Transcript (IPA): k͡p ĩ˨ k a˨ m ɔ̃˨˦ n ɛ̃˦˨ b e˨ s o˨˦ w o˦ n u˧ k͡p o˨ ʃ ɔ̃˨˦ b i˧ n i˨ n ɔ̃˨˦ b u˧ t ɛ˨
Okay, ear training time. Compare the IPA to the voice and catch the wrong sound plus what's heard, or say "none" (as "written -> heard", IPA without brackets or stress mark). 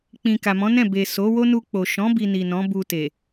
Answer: ɛ˨ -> e˨